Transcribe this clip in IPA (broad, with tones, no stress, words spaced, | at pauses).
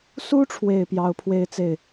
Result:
su˥ʈ͡ʂʰwe˨˩ɪ̯ pjɑ˧˥ʊ̯pʰwe˥˧ɪ̯t͡se˥˩ɪ̯